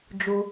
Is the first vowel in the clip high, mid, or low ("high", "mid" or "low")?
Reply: high